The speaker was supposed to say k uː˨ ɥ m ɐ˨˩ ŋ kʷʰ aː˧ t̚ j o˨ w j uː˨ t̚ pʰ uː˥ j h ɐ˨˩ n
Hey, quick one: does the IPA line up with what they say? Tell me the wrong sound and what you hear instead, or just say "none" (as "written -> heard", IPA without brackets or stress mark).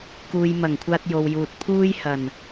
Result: ɥ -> j